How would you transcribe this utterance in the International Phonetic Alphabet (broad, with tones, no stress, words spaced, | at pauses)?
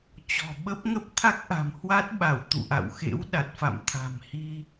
t͡ɕɔ̤˨˩ɓə˦˥p̚ŋə˦˥p̚ t̪ʰa˦˥k̚ʔa̤˨˩mhwa˦˥t̚ɓa˧˩w t̪ṵ˧˨ʔa̰˧˨wxḛ˧˥w ɗa˨˩t̚fa̰˧˨m t̪ʰa̤˨˩mhi˧